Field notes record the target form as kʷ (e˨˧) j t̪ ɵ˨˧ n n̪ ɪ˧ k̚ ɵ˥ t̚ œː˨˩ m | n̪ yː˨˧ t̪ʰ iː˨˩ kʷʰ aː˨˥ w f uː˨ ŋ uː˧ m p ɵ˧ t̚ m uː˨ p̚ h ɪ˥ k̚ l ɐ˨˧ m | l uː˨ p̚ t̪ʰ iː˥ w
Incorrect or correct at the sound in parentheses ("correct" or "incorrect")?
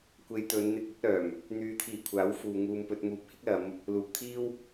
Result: correct